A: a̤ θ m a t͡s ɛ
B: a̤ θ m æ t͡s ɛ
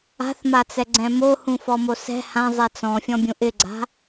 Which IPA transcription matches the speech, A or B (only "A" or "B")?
A